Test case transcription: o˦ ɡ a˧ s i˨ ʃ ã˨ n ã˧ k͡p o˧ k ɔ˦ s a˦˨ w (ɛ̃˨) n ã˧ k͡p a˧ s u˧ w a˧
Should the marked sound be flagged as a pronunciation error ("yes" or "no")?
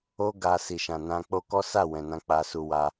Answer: no